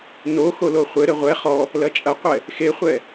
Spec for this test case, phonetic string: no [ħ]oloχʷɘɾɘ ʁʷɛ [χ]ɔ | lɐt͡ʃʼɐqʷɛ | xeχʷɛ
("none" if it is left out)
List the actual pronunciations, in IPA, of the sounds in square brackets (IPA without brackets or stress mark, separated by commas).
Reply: x, χ